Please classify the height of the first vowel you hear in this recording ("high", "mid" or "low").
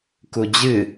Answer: high